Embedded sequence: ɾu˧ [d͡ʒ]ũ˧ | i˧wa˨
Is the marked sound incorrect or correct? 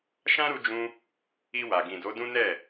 correct